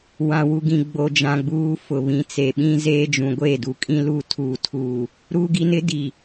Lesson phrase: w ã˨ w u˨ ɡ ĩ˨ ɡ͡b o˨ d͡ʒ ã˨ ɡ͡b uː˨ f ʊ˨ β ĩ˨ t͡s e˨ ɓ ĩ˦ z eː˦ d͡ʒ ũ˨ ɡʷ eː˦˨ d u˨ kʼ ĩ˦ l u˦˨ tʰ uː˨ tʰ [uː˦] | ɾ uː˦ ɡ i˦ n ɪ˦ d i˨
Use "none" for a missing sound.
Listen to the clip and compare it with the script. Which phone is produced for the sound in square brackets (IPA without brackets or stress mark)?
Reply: uː˨